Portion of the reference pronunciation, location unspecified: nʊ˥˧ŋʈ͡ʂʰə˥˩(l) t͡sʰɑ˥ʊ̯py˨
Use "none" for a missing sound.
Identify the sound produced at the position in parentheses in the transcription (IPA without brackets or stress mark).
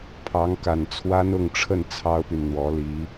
n